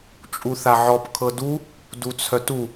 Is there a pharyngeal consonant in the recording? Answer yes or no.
yes